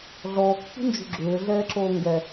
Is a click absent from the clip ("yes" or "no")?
no